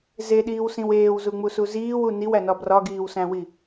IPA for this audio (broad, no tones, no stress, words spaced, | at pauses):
zeɗiːwsĩw eːwzuŋ͡musu ziːwu niwænɒ brɒɡiːwsæ̃wi